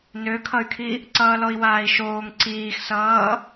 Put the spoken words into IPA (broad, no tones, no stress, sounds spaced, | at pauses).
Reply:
n ø kʰ ʌ y̯ kʰ i | ǀ ʌː l ɔ i̯ w aː i̯ ʃ oː ŋ ǀ iː x s ʌː